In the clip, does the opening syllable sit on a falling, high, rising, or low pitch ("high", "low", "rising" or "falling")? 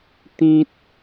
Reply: high